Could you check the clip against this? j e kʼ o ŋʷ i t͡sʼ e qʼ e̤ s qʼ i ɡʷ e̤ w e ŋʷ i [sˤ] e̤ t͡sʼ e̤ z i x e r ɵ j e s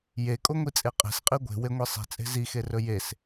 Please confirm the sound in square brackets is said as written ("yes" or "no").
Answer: yes